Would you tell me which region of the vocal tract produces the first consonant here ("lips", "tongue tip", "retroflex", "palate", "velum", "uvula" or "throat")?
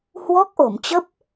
throat